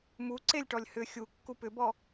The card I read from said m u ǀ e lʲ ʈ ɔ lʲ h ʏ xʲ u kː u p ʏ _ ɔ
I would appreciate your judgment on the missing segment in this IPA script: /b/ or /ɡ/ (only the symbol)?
b